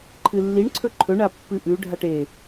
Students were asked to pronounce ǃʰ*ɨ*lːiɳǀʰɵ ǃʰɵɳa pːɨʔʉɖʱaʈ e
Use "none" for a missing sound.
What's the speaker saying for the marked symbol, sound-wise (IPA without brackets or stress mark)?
ɨ